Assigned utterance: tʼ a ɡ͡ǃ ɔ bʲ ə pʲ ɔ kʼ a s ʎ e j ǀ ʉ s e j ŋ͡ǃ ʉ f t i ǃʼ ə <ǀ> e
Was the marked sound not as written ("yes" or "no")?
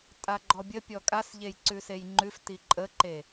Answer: yes